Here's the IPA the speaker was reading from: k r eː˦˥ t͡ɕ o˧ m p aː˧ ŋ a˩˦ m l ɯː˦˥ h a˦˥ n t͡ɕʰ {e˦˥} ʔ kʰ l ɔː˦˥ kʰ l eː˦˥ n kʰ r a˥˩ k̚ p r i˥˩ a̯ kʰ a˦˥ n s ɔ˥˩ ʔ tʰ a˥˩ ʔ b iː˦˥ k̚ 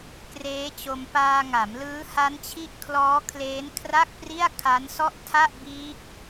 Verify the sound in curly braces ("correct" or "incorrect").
incorrect